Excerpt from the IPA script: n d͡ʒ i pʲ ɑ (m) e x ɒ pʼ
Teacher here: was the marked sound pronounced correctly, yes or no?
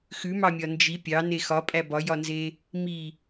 no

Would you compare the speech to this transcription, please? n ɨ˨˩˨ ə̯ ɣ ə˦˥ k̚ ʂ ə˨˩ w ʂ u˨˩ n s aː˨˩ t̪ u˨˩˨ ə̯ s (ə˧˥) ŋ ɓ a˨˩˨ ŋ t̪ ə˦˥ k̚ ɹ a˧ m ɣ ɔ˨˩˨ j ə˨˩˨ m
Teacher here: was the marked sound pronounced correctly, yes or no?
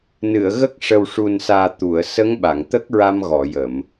yes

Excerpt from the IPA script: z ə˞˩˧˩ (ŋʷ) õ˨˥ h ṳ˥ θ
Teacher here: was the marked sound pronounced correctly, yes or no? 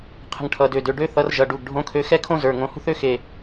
no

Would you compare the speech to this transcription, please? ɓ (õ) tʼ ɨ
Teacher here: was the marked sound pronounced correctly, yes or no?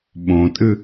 yes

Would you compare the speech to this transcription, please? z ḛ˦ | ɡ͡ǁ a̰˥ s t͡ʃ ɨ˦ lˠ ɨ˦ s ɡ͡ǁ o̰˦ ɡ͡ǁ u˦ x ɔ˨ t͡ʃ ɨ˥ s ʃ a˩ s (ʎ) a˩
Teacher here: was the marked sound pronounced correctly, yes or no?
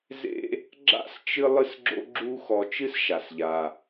yes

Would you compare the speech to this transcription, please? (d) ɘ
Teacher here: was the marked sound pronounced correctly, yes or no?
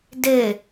yes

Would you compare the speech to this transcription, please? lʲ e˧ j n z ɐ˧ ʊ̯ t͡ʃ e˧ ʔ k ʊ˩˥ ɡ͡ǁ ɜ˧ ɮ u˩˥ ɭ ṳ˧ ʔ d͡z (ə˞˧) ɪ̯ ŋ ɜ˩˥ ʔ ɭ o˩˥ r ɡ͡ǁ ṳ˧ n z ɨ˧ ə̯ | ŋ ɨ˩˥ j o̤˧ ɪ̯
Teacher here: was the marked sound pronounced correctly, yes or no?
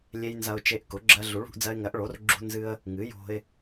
no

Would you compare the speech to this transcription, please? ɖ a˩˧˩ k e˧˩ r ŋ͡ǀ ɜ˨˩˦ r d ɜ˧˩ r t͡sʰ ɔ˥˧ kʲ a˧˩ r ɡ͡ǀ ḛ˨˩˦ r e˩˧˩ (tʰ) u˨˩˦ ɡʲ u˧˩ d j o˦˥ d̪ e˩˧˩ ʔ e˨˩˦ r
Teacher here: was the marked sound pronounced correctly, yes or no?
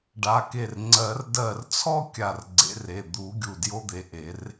no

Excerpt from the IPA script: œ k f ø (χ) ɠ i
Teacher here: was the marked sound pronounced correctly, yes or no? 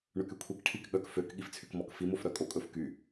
no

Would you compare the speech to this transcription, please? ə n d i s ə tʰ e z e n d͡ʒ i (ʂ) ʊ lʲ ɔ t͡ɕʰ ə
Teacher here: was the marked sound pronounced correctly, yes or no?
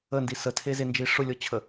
yes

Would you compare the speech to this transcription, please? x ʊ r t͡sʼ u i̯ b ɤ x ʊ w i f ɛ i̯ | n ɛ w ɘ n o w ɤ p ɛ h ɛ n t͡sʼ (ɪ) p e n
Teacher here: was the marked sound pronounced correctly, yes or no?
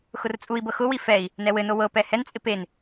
yes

